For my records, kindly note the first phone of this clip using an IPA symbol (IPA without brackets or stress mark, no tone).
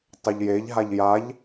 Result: tˤ